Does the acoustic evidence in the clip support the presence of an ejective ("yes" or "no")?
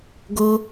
no